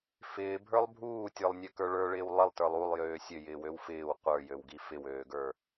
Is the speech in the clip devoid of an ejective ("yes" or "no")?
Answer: yes